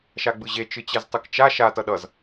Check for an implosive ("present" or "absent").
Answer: present